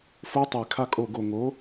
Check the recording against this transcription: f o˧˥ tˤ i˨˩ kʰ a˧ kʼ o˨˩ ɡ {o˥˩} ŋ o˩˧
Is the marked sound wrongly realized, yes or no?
yes